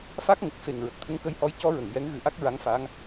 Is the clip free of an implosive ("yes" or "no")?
yes